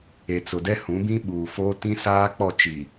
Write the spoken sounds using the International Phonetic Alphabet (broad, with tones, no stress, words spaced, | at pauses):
e˨t͡sʊ˨dɛ˦ hũ˨˦bĩ˦ɓuː˨foː˦ tĩ˦saː˦k͡pɔ˦˨t͡ʃi˨